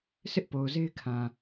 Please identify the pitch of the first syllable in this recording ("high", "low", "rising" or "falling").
high